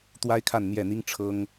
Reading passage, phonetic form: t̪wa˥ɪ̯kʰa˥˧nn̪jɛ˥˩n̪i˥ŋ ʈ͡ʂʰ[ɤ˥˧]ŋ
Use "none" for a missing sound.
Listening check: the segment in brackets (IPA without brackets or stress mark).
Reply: ɤ˥